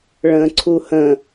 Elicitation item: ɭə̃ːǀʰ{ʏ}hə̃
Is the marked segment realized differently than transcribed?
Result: yes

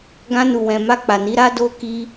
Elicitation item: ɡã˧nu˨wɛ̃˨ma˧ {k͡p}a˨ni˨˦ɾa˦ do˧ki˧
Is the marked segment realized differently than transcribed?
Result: no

